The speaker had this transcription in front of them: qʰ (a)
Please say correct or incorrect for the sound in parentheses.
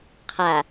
correct